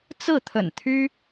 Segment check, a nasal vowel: absent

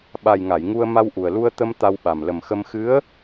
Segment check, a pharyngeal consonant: absent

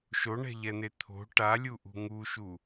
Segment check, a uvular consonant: absent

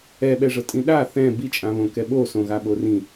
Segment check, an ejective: present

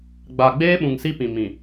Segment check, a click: absent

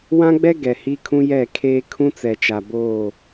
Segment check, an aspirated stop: present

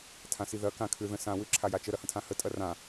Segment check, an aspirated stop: present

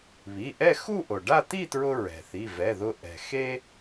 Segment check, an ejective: absent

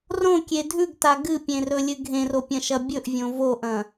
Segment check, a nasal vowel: present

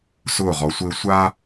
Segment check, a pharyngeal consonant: absent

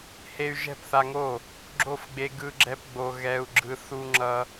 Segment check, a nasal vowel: absent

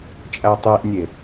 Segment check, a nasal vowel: absent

